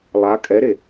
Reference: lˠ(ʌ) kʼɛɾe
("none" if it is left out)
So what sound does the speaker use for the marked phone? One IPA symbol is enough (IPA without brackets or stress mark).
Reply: a